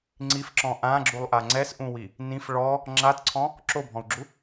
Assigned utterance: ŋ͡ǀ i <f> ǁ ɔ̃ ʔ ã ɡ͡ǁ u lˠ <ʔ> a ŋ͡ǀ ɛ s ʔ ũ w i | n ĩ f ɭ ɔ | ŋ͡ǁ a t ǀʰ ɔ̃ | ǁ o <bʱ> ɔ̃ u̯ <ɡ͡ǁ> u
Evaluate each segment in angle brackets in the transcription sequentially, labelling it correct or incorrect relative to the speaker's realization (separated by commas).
correct, correct, correct, correct